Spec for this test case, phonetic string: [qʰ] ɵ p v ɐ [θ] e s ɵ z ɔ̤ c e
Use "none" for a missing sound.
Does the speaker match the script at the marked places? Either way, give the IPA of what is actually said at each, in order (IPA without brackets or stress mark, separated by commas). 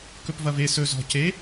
k, v